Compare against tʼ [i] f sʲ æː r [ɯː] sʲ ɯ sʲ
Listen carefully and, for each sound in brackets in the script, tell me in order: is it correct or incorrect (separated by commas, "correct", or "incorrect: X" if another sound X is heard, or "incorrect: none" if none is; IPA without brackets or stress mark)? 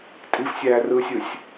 correct, correct